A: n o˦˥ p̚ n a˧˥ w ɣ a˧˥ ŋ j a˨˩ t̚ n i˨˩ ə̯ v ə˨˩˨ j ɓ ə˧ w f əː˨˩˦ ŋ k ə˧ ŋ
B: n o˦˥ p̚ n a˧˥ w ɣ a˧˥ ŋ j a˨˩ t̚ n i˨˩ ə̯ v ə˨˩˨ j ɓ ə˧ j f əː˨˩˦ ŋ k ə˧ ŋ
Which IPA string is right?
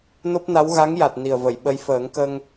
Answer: B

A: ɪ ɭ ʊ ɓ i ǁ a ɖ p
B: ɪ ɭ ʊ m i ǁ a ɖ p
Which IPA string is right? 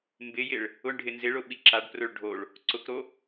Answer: A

